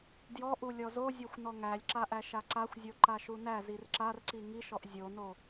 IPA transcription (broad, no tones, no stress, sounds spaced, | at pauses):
d j ɔ ʔ u lʲ ɔ z o zʲ ɔ xʷ n ɔ ŋ æ lʲ ǁ a ʔ æ ʃ a ǀ a xʷ zʲ o ǃ a ʃ u n æ z i r ǁ a r ǀ i ŋ i ʃ ɔ ʔ zʲ o n o